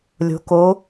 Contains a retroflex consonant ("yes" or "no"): no